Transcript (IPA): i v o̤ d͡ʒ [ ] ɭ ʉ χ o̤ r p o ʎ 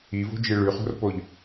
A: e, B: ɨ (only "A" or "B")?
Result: B